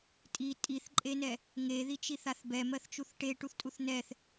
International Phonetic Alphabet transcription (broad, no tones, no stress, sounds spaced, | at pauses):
tʼ i tʼ i θ ǃʼ e n ɛ | ŋ e ð i t͡ʃ i θ a θ b ɛ m ɜ θ t͡ʃ u θ ʈ e ʈ u θ tʼ u θ n ɛ θ